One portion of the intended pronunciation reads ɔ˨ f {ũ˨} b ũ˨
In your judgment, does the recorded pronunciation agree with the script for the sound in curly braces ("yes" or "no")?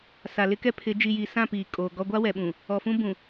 no